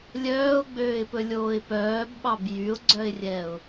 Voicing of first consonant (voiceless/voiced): voiced